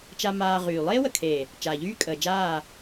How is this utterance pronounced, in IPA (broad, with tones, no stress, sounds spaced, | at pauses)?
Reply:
t͡ʃ a˧ m aː˧ ʁ yː˨ lˠ eː˦ w ə˨ kʰ eː˨ | t͡ʃ aː˨ ʎ yː˦ kʼ əː˨ d͡ʒ aː˦˨